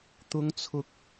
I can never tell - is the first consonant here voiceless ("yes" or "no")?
yes